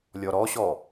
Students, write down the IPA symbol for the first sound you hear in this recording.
lʲ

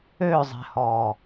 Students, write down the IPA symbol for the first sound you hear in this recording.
ø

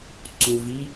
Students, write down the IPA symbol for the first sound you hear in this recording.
ǀ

